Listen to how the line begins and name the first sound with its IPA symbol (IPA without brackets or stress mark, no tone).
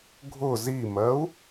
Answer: ɡʱ